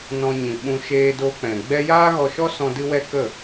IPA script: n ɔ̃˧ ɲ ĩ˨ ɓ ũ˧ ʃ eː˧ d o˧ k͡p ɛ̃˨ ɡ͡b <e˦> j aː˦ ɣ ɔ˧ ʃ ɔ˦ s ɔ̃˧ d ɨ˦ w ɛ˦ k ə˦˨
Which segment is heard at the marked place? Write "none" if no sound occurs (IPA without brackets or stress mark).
ɛ˦